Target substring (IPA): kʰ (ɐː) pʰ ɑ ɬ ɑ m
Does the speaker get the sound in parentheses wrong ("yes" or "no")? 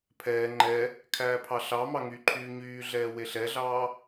yes